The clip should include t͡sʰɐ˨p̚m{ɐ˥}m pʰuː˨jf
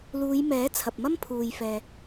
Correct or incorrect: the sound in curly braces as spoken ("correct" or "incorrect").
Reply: correct